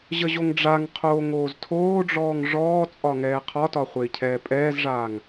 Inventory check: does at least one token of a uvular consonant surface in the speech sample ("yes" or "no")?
yes